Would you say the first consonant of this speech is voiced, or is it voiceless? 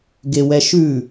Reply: voiced